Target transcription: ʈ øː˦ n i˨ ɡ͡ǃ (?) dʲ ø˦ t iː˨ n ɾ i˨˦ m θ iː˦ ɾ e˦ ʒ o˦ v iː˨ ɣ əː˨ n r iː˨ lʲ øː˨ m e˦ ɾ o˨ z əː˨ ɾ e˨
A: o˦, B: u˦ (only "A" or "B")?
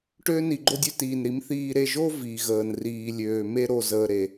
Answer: A